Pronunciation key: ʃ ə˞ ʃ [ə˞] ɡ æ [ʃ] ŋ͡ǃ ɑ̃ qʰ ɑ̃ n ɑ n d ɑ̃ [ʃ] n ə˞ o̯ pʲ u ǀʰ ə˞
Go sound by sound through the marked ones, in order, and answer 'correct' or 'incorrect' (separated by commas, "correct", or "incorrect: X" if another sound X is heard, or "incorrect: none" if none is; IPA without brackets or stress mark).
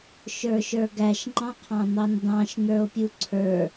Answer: correct, correct, correct